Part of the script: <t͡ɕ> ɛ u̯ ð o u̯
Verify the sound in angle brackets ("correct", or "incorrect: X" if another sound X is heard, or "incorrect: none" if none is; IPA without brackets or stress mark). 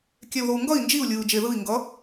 incorrect: kʲ